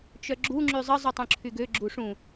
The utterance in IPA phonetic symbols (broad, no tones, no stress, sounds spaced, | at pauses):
t͡ʃ œ ɡ͡ǁ u ŋ͡ǁ y zˤ ə zˤ y tˤ ũ ǁʰ y ɡ ø ɡ͡ǁ u ʂ ũ